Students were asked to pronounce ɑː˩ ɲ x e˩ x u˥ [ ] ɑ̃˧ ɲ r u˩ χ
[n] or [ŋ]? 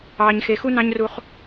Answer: n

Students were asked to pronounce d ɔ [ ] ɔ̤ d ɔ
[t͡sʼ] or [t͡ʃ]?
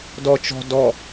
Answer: t͡ʃ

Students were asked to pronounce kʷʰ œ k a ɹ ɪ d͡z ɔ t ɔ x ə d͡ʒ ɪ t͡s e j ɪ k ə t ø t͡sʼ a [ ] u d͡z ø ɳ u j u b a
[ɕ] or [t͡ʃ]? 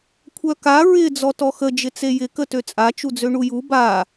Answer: t͡ʃ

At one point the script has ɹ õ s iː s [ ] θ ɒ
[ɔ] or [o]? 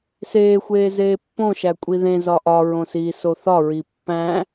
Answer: o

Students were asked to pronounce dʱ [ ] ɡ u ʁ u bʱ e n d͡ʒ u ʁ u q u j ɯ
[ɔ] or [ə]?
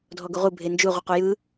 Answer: ɔ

